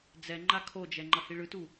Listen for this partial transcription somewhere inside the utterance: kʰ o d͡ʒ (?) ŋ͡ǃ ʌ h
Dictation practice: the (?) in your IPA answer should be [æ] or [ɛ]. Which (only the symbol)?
ɛ